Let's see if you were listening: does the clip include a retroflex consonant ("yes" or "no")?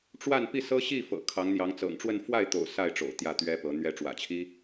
yes